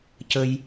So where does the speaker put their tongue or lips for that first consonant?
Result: palate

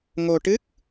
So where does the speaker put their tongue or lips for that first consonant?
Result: velum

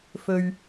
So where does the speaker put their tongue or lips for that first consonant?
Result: lips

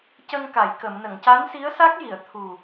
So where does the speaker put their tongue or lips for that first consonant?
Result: palate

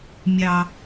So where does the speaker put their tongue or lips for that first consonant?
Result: lips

